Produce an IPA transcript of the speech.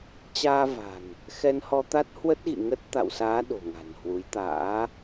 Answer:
t͡ɕ aː˧ v a̤˨˩ n | x ɛ˧ n h ɔ˧ t̪ a˦˥ t̚ h w ə˦˥ t̚ ɣ ḭ˧˨ ŋ ə˦˥ t̚ t̪ a̰˧˨ w s aː˨˦ ɗ o̤˨˩ ŋ a̤˨˩ n h w u˨˦ j t̪ a̰ː˧˥

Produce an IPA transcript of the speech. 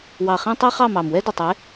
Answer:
w ɑ˨ χ ĩ˧ tˤ e˦ χ ɑ˦˨ m ɑ˨ m w ɛ˦ d ə˨ tˤ e˨˦

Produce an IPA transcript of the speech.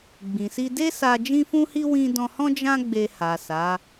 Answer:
ɡ͡b ĩ˨ s i˧ d e˦ s a˧ d͡ʒ ĩ˦ f ũ˦ h i˦ w ĩ˦ d ɔ̃˧ h ɔ̃˦ d͡ʒ ã˦ ɡ͡b e˧ h a˨ s a˨˦

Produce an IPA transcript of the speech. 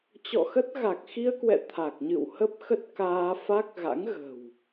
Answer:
t͡ɕ ɔ̰˧˨ x ə˦˥ t̚ ɣ a˨˩ k̚ x i˧ ə̯ k w ɛ̰˧˨ t̪ʰ a˨˩ k̚ ɲ ɨ̰˧˨ w h ə˦˥ p̚ x ə˦˥ t̚ k aː˧ f a˦˥ k̚ ɣ a̰˧˥ ŋ ɣ ə̤˨˩ w

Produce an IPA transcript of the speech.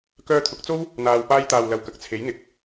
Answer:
k œː˧ t̪ʰ ʊ˨˥ k̚ t͡s o˥ w | n̪ aː˨ w p aː˧ j t̪ aː˨ w l ɐ˨ w k ɐ˨˥ k̚ t͡sʰ e˨˥ j n̪ ɪ˨˥ k̚

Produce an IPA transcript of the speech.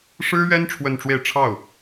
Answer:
ʂ ɻ̩˥ ɥ ɛ˥ n ʈ͡ʂʰ w ə˥˧ n ʈ͡ʂ w e˥˧ ɪ̯ ʈ͡ʂʰ ɑ˥˩ ʊ̯

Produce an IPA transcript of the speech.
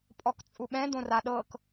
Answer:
pʼ ɔ k t͡sʼ u ɓ ɛ̃ d õ r a ɗ ɤ k

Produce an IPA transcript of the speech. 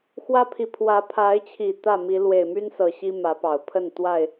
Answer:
x w ä˦ pʰ i˨ pʰ w ä˨˦ pʰ a˨˦ ɪ̯ t͡ɕʰ i˨˩ t̪ ä˥˨ m i˨˦ l w e˨˩ ɪ̯ m y˦ n s ɤ˨˩ ɕ i˦ m ä˨˦ p ɑ˨˩ ʊ̯ pʰ ə˥˨ n t̪ w a˥˨ ɪ̯

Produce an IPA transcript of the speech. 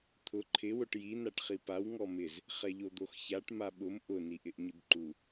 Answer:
t̪ʰ ʊ ǃʰ ɪ w ʊ ʈ j i n a ʈ χ i p a w ŋ ɔ m ɪ z | χ ɛ ʎ o d̪ o x ç a ʈ m a ɓ ʊ m ʔ ʊ n i ʔ ɪ ʔ ɲ ɪ b ǃ u

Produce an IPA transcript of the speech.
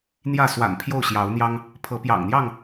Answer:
n̪ j ä˥˨ s w a̰˨˩ n pʰ j o˥˨ ʊ̯ ɕ j ɑ˨˦ ʊ̯ n̪ j ɑ˦ ŋ | pʰ ɤ˨˦ p j ɑ̰˨˩ ŋ n̪ j ɑ˥˨ ŋ

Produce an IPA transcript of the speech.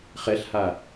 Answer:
χ ɛ ɬ h a

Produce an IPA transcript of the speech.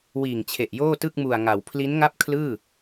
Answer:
w iː˨˩ ŋ t͡ɕʰ e˨˩ ʔ j oː˥˩ t ɯ˥˩ k̚ m u˨˩ a̯ ŋ a˩˦ w pʰ l i˦˥ n ŋ a˥˩ p̚ kʰ l ɯː˥˩

